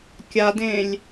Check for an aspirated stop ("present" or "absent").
absent